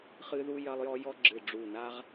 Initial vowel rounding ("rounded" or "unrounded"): unrounded